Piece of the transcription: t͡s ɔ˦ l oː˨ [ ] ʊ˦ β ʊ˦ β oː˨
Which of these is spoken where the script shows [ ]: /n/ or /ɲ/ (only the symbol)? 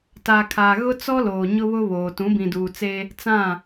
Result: ɲ